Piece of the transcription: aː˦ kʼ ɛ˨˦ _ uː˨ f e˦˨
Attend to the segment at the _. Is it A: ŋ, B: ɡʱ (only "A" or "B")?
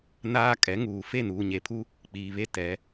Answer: A